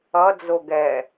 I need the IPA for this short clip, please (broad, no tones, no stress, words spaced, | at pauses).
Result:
ʌd͡zo ɡɛ